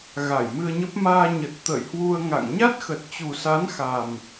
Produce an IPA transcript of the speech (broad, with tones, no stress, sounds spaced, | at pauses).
ɣ a˧˩ j m ɨ˧ ə̯ ɲ ə˦˥ p̚ m aː˧ ɲ ə˨˩ t̚ t̪ ə̰ː˧˨ j h w u˧ ə̯ ŋ a̰˧˨ ŋ ɲ a˦˥ t̚ x ə˨˩ t̚ t͡ɕ u˨˩ s a˨˦ n x a˨˩ m